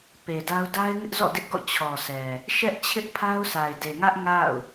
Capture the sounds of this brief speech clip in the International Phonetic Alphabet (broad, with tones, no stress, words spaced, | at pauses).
pe˨da˦ʊ̯ da˦ɪ̯ŋɪ˦ʔzɔ̰˦˨ dɪ˦ʔɡɔ̰˦˨ t͡ɕʰɔ˨sɛ˨ | ʃɛ˦ʔ t͡ɕʰɪ˦ʔpʰa˦ʊ̯sʰa˨ɪ̯ de˨ŋä˦ʔ ŋa̰˦˨ʊ̯